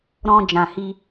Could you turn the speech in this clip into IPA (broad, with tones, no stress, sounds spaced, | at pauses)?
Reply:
ɾ ɔ̃˧ d͡ʒ ã˨ h i˧